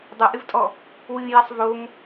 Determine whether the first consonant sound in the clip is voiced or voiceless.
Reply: voiced